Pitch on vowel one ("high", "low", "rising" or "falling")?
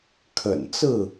low